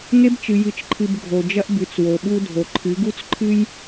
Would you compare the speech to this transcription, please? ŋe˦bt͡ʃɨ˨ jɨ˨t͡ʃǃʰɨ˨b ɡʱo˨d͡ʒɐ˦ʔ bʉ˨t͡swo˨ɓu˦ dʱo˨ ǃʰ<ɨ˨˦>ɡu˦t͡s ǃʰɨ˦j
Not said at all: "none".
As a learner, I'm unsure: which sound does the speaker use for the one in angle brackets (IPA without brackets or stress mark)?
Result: ɨ˨˦